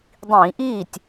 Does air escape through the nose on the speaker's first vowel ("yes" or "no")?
yes